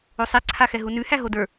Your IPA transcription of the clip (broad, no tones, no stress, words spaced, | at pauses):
osˤɛǀʰaxɛ ɦunʉhæ ɦodə˞